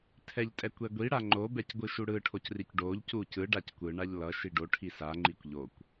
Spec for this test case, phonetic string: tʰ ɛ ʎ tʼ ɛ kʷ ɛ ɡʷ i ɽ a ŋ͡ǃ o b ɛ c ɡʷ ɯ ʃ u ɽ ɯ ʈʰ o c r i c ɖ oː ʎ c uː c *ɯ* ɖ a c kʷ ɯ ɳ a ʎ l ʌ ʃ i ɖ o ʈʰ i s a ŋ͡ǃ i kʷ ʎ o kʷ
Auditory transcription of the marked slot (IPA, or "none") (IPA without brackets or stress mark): ɯ